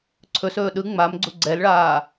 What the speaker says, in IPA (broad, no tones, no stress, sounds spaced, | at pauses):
ǀʰ ɵ s ɵː ɗ ɯ ŋ͡m a m ɡ͡ǀ u ɡ͡ǀ ɛ l ɭ aː